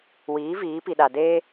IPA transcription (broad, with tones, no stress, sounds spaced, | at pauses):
w iː˨˦ v iː˨˦ p i˨ ɗ a˨ d eː˦